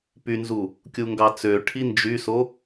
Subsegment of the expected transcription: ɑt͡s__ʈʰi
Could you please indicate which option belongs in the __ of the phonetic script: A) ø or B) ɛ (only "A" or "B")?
A